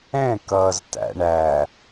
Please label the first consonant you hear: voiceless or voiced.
voiceless